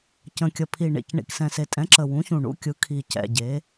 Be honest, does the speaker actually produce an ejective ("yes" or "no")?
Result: yes